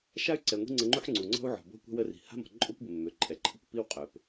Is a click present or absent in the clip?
present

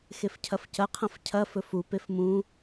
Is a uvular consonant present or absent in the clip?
present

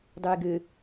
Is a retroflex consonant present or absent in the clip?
absent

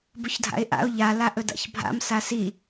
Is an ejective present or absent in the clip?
absent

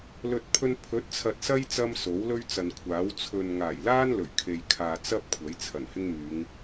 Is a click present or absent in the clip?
absent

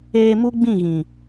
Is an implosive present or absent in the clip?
absent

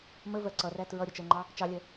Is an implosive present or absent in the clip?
absent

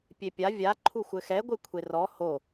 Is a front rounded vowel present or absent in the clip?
absent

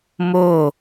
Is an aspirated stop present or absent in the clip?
absent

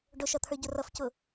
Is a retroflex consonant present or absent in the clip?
present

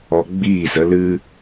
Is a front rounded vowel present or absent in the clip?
absent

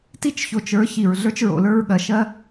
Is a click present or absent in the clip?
absent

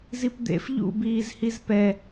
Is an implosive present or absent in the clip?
absent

